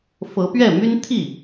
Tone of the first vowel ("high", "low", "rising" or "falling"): rising